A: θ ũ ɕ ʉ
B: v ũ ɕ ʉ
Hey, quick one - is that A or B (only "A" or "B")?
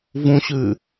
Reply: B